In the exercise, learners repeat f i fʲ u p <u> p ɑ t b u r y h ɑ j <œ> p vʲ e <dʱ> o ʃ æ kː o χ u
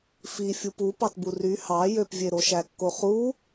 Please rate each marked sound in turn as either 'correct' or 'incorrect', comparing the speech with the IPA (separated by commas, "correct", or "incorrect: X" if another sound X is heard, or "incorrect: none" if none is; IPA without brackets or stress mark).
correct, incorrect: ø, incorrect: ɾ